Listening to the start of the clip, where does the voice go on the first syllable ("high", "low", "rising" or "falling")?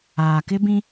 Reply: low